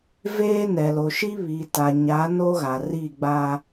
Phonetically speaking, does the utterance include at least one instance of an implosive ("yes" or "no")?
no